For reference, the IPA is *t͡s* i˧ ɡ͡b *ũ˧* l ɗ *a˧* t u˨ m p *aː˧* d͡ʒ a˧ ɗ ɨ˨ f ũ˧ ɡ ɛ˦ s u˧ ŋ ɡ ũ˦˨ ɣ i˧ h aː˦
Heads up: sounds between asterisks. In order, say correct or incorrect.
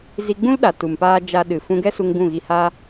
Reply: incorrect, incorrect, incorrect, correct

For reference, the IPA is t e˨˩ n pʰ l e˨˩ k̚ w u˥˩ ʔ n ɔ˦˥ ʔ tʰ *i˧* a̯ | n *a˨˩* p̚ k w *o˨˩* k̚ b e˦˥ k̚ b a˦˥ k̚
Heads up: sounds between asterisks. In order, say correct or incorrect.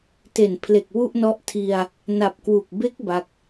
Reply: correct, correct, incorrect

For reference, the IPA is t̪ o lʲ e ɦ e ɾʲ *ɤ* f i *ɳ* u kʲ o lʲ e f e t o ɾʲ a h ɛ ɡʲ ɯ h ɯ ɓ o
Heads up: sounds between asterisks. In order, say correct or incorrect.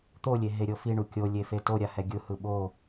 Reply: correct, correct

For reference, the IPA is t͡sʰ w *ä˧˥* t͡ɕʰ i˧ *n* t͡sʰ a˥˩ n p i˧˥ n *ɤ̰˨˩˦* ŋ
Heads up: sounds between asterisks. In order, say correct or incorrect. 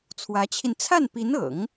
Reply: correct, correct, correct

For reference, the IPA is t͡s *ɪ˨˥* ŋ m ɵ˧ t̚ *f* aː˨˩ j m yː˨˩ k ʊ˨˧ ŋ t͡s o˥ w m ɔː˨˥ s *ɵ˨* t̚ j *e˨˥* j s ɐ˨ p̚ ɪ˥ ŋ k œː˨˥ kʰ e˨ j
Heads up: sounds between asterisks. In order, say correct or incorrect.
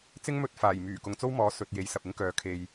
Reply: incorrect, correct, correct, correct

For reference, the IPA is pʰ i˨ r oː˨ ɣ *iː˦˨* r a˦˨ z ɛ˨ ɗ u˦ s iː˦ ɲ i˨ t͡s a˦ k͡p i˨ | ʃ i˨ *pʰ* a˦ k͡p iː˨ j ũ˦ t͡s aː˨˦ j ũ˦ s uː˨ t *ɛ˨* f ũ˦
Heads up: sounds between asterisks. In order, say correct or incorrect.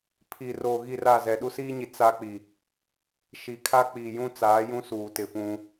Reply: incorrect, incorrect, incorrect

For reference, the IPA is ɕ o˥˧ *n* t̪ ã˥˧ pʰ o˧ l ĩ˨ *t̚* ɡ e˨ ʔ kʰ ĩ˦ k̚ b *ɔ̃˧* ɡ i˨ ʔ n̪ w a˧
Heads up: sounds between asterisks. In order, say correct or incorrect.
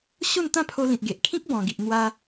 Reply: correct, correct, incorrect

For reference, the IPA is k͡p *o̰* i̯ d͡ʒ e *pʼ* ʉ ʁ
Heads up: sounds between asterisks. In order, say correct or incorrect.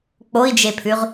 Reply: incorrect, incorrect

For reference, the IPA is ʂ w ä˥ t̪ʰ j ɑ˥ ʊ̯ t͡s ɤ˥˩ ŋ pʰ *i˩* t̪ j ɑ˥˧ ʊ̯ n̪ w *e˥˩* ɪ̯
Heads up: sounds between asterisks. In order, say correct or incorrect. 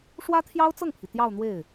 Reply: correct, correct

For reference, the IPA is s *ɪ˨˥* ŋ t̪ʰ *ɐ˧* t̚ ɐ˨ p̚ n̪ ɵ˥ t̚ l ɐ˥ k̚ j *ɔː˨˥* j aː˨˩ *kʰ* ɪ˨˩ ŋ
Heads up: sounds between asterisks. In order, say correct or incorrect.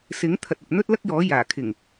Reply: correct, incorrect, correct, correct

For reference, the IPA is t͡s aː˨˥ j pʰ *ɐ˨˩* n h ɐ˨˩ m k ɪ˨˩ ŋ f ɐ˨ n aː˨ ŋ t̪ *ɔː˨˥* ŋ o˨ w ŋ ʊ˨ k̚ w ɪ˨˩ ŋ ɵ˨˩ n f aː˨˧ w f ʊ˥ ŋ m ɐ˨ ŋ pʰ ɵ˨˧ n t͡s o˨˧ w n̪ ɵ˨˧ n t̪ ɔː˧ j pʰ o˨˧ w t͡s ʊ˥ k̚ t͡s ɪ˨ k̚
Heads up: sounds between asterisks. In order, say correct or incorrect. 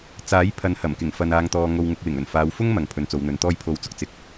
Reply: incorrect, incorrect

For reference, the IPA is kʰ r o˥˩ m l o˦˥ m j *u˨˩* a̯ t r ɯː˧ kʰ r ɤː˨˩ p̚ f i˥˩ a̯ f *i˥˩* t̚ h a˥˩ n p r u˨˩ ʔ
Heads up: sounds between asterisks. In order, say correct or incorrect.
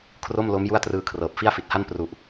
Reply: incorrect, incorrect

